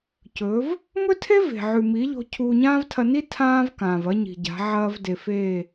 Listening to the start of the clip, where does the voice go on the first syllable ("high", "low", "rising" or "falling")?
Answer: rising